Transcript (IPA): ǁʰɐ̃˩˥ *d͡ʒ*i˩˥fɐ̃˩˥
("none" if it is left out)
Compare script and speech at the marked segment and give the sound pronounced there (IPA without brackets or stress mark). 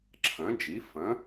d͡ʒ